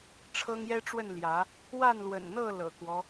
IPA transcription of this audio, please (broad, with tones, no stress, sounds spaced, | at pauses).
ʈ͡ʂʰ ɤ˦ ŋ j ɛ˦ ʈ͡ʂ w ə˥˨ n l j ä˨˦ | w a˥˨ n l w ə̰˨˩ n n̪ ɤ˥˨ l ɤ̰˨˩ k w ɔ˦